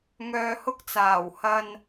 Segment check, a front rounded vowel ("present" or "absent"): present